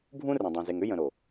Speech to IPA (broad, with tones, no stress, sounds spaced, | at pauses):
bʱ ũ˦ r ẽ˨ dˤ ẽ˨ z e˨ ŋ ʏ˦ j ə̃˨ ɾ o˨